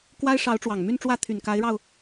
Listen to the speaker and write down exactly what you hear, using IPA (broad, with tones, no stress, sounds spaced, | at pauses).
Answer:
k w a˥ ɪ̯ ʂ ɑ˧˥ ʊ̯ ʈ͡ʂ w ɑ˨˩ ŋ m y˥˧ n ʈ͡ʂ w ä˥˩ t̪ʰ y˨˩ n k a˧˥ ɪ̯ ɻ ɑ˧ ʊ̯